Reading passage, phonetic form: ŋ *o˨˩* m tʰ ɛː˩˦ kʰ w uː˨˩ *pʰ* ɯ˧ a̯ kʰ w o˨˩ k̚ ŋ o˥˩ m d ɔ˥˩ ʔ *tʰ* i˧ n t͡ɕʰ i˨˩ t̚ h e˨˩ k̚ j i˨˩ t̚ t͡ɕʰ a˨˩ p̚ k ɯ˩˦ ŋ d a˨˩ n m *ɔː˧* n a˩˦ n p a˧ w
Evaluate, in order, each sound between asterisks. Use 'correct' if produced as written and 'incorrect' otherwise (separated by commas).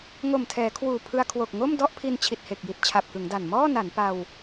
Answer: correct, correct, incorrect, incorrect